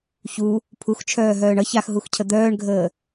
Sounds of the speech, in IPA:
çu | pʰuxt͡ʃʰœːɦœːɳ ʌç axɦuxcʰə d̪œːɳɡʱəː

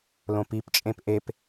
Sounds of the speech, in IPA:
lõpipt͡ʃʼẽp ʔep

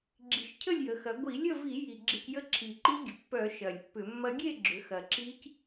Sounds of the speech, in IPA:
ɡ͡ǁi˨˩ʃcʰə˥˨lʲjə˩˧ xɐ˩˧ɡʷi˧˩˧lʲə˥˨vi˧˩˧ ji˨˩ɡ͡ǁɪ˧c jə˦˥ǁʰi˨˩ǃi˦˥ɡʲə˨˩ pːœ˧˩˧ ʃɐ˨˩lʲpːʏ˧˩˧mːɐ˦˥ ɡʲe˥˨ɡ͡ǁʏ˩˧ xɐ˨˩ǁi˦˥c

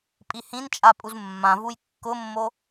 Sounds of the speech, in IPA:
pʼihĩnt͡ʃʼa pʼuzmːãvuj kːʊmːo

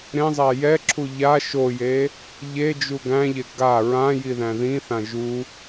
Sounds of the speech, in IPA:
ɾẽzˤæ jɛǁʰu ʎa ʃoje | ʎed͡ʒu ɡæ̃ʎe ɡa ɹãjiðæ̃ ðĩθã ʒu

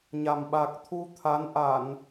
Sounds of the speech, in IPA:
ɲa˨˩mɓa˨˩k̚t̪ʰu˧ t̪ʰa˨˦n ʔa˧˩˨n

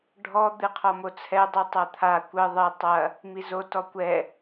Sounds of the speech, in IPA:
ɖʱɔ d̪ɨqʰɔmot͡sʰɛ dˤutˤɐt̪ʰa kʷɘ ðˤɘ tˤɐ | mizo tɔkʷɛ

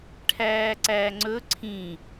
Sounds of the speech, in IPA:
ʈʰæːǀæːŋ͡ǀɵ ǀʰĩ

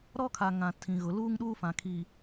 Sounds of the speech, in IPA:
ɾɔ˦kʰa˨ŋã˨ tʰĩ˨ ɣʊ˨ luː˦ŋɗuː˦fã˨ kʰi˨

